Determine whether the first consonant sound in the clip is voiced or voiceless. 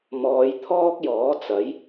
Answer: voiced